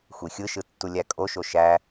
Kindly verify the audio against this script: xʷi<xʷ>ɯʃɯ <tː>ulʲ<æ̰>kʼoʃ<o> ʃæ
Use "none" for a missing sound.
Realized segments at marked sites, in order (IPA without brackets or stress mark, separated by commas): xʲ, tː, æ, o